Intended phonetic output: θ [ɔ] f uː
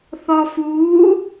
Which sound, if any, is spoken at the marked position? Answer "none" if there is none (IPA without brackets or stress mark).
ɔ